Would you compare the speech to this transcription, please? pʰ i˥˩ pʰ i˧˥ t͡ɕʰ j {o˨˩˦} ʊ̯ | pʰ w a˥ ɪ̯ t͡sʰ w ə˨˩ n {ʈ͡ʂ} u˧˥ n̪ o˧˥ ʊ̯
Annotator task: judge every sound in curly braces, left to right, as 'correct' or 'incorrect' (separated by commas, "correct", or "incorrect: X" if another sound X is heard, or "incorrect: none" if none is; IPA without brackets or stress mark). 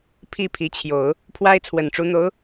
correct, correct